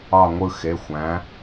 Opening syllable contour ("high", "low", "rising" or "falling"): falling